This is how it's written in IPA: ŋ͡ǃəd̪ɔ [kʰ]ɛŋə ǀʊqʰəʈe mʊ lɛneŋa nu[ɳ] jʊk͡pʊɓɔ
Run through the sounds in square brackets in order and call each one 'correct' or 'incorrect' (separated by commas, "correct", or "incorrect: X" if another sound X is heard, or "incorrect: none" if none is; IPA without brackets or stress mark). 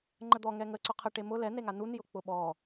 incorrect: ŋ, incorrect: n